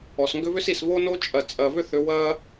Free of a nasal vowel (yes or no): yes